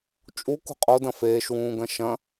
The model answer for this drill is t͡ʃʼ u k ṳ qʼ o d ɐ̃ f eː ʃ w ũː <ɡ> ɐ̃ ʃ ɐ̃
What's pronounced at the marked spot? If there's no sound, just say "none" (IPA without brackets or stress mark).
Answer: ɡ